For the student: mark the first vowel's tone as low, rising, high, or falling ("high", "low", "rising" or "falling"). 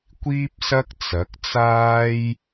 high